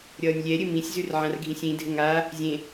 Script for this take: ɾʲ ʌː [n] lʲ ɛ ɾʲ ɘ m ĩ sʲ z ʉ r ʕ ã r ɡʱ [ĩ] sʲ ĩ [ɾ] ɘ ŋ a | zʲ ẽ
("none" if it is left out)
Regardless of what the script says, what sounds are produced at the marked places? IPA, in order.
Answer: nʲ, ĩ, dʱ

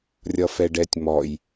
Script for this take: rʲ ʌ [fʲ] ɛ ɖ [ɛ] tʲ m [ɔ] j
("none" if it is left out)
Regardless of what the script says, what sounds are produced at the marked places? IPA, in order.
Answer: f, ɛ, ɔ

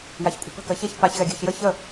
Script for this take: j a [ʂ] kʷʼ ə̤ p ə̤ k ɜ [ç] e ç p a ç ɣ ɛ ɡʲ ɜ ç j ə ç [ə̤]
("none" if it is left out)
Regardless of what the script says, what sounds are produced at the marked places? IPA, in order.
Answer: ç, ç, ə

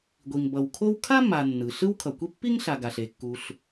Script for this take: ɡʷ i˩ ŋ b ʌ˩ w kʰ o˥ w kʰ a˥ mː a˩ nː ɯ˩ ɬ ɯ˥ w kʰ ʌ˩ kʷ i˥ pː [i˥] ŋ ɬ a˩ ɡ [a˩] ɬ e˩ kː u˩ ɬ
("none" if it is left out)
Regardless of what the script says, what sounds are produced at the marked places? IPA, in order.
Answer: i˥, a˩

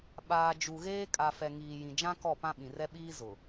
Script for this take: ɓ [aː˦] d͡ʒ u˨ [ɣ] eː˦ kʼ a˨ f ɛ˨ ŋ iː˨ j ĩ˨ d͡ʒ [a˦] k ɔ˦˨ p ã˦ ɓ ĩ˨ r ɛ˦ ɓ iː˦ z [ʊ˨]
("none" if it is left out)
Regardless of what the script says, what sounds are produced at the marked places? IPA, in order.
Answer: aː˨, ɣ, ã˦, ʊ˨

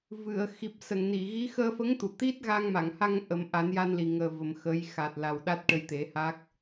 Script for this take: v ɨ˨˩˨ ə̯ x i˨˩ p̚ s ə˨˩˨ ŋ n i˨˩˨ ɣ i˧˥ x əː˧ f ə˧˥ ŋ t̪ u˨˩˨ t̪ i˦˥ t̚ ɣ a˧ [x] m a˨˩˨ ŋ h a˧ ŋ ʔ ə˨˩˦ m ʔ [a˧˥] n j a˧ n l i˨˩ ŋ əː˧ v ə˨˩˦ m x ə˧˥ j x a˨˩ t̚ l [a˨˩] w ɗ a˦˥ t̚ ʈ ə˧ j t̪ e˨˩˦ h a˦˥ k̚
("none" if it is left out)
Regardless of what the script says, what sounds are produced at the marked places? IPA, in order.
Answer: ŋ, a˨˩˦, a˨˩

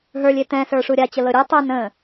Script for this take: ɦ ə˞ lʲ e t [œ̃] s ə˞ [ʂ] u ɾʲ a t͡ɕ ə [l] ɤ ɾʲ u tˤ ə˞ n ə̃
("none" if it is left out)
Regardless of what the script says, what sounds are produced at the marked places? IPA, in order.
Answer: ɛ̃, ʂ, l

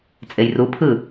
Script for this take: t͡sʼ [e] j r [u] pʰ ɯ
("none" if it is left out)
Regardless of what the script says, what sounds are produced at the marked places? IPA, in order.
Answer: e, u

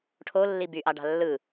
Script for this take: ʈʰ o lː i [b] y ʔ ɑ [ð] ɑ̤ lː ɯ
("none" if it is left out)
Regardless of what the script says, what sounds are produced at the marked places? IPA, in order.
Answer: b, ɖ

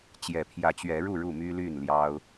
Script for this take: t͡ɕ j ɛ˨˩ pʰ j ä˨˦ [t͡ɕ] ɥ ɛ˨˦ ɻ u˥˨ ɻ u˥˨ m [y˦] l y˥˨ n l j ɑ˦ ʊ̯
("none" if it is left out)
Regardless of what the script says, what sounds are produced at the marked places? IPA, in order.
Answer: t͡ɕ, y˦

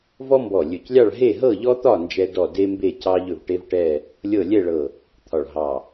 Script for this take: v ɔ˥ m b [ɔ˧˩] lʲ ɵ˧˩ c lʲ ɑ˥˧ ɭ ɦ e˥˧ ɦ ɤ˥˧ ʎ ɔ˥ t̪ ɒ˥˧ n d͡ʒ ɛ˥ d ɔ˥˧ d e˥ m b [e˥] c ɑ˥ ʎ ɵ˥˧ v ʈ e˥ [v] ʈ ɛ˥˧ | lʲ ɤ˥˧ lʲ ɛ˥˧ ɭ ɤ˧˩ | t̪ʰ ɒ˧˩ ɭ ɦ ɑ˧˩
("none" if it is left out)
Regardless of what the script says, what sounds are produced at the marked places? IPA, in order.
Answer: ɔ˧˩, e˥˧, v

